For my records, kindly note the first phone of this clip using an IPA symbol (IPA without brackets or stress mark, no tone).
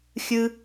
xʲ